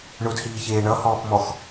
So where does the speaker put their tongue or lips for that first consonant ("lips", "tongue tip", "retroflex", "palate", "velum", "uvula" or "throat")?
retroflex